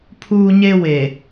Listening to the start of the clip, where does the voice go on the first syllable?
high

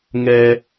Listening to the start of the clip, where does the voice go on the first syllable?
low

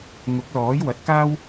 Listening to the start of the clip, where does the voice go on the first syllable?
rising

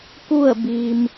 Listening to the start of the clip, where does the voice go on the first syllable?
falling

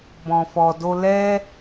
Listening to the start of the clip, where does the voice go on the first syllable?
low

